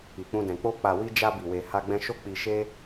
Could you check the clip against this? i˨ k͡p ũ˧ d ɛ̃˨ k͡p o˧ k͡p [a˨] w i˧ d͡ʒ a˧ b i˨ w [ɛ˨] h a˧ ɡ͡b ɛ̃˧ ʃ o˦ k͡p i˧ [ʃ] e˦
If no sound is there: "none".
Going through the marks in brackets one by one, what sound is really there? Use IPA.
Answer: a˨, e˨, ʃ

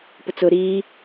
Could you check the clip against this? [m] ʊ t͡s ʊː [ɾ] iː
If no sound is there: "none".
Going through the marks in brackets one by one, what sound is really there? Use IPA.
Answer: p, ɾ

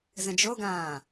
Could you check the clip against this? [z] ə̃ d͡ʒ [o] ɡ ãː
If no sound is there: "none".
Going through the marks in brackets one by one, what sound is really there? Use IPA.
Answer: z, o

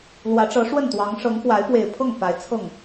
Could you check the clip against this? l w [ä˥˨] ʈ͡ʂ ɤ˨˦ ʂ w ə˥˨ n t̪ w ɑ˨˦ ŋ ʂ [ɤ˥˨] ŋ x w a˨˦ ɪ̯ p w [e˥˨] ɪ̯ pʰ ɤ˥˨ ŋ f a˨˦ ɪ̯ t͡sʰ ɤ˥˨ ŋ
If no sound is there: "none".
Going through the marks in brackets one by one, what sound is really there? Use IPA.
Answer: ä˨˦, ɤ˨˦, e˨˩

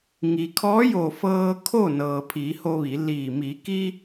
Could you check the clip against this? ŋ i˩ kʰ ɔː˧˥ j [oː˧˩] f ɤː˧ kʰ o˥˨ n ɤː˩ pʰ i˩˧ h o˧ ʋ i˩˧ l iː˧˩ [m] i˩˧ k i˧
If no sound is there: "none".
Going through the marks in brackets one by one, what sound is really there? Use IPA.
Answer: oː˧˩, m

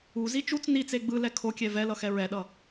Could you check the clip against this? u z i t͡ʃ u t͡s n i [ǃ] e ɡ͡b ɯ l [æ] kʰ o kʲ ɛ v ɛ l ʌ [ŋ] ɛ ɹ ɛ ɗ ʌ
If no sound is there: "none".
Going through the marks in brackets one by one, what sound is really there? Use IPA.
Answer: t͡s, ɛ, x

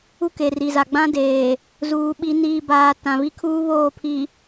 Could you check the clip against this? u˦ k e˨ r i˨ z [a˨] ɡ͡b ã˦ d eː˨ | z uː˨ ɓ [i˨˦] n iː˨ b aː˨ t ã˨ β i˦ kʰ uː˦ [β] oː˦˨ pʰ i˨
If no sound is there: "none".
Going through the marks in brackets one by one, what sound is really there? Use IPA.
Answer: a˨, i˨˦, β

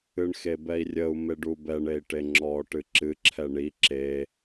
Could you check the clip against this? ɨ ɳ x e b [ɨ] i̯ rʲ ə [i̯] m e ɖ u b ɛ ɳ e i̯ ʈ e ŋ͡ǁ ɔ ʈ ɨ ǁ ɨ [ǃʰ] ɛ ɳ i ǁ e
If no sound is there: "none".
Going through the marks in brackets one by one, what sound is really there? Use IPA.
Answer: ɛ, u̯, ǁʰ

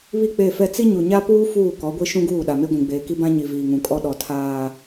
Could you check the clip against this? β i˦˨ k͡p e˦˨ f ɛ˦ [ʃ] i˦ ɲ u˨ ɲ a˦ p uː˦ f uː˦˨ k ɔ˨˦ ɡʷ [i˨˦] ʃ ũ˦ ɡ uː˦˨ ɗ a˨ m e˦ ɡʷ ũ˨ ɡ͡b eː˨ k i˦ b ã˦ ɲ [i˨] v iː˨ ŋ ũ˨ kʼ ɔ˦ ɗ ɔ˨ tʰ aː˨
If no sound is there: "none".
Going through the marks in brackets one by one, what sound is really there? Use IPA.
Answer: t͡s, i˦, i˨

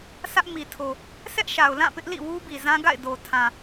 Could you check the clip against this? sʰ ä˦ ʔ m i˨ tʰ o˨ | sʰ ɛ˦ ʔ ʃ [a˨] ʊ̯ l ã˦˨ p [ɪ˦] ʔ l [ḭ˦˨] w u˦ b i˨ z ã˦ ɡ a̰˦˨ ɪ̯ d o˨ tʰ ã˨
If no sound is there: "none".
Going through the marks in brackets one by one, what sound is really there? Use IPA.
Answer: a˨, ɪ˦, ḭ˦˨

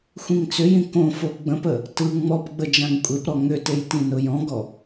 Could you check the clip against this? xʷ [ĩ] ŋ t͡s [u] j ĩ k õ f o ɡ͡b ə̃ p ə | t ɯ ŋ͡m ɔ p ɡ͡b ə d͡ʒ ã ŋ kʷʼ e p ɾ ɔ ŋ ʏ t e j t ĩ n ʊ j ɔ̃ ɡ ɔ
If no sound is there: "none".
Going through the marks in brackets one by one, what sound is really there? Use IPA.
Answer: ĩ, ʏ

